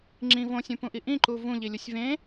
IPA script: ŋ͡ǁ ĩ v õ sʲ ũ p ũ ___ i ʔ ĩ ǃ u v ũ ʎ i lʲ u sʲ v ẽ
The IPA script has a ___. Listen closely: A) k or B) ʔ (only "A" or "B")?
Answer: B